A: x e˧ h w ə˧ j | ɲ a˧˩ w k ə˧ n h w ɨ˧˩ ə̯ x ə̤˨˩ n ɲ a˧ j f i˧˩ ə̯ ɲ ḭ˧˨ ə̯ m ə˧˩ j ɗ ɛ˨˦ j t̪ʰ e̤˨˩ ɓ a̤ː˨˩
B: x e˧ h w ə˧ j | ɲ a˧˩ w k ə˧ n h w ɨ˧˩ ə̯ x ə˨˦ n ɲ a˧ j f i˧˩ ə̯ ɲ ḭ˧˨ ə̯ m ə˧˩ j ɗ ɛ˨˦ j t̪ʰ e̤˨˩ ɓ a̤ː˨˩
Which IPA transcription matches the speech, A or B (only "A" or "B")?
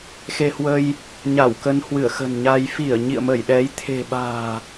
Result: A